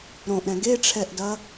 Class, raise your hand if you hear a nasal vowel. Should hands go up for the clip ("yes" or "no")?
yes